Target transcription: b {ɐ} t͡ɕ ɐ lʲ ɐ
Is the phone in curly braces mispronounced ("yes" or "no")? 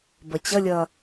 no